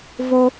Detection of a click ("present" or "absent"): absent